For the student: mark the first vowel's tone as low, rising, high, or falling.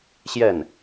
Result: falling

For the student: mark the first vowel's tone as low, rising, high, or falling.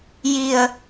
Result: low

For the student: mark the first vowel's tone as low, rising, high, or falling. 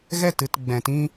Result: falling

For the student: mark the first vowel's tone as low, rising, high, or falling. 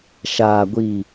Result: low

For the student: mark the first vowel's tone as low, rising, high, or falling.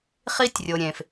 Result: high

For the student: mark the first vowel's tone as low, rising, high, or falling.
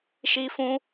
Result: high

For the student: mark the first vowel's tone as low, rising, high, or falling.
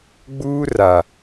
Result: high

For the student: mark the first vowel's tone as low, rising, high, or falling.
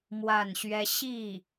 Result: falling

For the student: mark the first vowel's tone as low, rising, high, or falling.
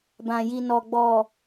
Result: low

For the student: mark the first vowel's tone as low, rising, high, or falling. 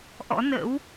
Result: rising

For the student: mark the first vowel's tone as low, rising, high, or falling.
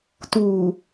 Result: low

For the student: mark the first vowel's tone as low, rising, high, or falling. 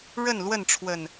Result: falling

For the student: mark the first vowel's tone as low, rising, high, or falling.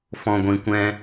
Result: low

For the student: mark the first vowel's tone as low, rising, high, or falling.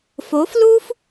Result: rising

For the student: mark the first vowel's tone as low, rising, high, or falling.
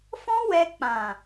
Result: high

